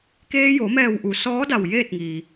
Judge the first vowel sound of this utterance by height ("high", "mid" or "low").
mid